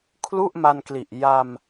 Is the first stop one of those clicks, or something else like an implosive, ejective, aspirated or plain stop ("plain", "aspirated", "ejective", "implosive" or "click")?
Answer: aspirated